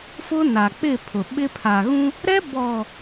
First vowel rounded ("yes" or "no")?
yes